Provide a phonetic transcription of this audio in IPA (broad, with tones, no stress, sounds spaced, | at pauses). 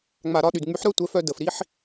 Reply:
ŋ͡m a˨ ɾ ɒ˦˨ ɗ y˨ d ŋ͡m y˨˦ ħ ɾ œ˦ tʷ ɛ˨˦ f œ˧ d ə˨ f ɾ i˦ ħ